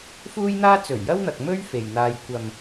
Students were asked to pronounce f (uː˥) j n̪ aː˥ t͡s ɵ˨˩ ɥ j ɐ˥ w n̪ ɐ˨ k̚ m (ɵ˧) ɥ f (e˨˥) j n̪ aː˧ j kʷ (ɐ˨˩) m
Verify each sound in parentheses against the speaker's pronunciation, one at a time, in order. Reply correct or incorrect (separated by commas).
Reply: correct, incorrect, incorrect, incorrect